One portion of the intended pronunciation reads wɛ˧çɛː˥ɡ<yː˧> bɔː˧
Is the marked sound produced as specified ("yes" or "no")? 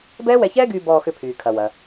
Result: yes